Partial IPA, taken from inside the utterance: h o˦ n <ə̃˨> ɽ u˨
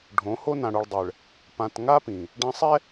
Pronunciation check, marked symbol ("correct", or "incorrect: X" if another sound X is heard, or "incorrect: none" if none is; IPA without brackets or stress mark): incorrect: ã˨